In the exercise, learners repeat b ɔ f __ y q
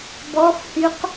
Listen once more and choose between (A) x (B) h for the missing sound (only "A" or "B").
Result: B